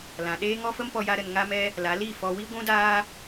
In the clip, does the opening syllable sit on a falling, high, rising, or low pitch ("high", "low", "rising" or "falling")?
low